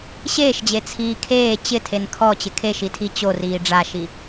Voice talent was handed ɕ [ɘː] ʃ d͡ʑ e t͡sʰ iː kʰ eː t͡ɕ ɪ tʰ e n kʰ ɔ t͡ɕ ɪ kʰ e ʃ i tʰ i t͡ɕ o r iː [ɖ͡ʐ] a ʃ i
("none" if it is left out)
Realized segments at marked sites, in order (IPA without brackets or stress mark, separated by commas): eː, ɖ͡ʐ